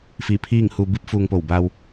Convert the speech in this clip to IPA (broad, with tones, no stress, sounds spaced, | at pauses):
f iː˧˩ pʰ iː˥˨ ŋ h u˧ b i˧˥ p̚ f uː˧ ŋ p o˧˩ w b a˧ w